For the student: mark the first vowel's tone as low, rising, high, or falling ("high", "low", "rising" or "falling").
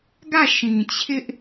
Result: falling